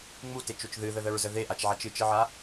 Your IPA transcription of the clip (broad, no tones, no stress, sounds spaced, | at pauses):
ŋ͡m u t e t͡ʃ o t͡ʃ ð ɨ ð ə ð ə ɹ z ə ð e ʔ a t͡ʃ ʕ a t͡ʃ ɨ t͡ʃ ə ʕ a